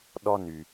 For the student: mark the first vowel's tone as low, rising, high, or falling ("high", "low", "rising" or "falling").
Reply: high